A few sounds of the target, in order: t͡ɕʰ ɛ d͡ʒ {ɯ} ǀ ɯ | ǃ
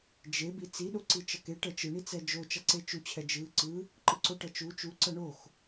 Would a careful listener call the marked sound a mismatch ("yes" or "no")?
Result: no